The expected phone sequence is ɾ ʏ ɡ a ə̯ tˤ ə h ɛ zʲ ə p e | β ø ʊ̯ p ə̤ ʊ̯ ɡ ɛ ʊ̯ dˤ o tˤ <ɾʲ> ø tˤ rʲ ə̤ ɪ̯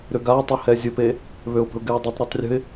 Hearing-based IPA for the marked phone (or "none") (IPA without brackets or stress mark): ɾ